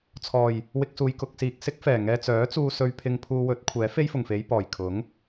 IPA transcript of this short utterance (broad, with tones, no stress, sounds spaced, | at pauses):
t͡sʰ ɔː˨˩ j | w ɪ˧ k̚ s uː˨ j k ʊ˧ k̚ s iː˨ k̚ s ɪ˥ k̚ f ɛː˨˩ ŋ ɛː˧ t͡s œː˨˥ t͡s uː˧ s ɵ˧ ɥ pʰ ɪ˧ ŋ pʰ uː˧ w ɵ˨˥ t̚ kʷʰ ɛː˨˥ f e˥ j f ʊ˨˩ ŋ f e˨˧ j p ɔː˨˩ j kʰ ʊ˨˥ ŋ